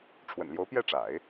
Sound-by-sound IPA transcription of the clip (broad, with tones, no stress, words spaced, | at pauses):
ʈ͡ʂʰwə̰˨˩nljo˧˥ʊ̯pjɛ˥˩ ʈ͡ʂa̰˨˩˦ɪ̯